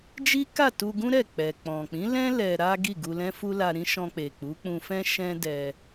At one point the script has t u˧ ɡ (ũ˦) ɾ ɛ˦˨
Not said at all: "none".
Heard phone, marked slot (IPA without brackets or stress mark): ũ˦